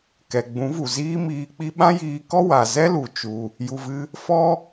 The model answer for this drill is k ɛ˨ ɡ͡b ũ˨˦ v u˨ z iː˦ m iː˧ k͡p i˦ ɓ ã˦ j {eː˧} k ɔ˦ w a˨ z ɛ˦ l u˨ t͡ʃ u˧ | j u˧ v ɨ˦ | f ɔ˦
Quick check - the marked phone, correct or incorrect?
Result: incorrect